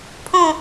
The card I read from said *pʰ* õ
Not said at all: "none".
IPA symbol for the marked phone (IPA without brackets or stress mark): pʰ